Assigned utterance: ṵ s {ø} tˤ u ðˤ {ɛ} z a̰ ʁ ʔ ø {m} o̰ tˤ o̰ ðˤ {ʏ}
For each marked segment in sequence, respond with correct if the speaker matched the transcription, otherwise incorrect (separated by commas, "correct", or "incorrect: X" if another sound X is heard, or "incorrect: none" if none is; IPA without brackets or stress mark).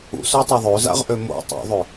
correct, incorrect: ø, correct, correct